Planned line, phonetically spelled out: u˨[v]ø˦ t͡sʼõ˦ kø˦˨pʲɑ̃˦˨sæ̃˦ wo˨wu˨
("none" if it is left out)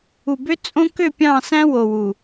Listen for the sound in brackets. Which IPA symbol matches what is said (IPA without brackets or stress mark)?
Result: b